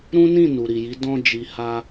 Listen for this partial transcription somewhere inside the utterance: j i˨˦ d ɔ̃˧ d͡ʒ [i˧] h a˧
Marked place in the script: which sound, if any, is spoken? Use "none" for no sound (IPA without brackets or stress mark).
i˨